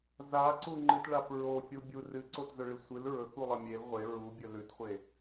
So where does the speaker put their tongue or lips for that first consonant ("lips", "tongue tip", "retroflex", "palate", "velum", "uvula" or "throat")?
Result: tongue tip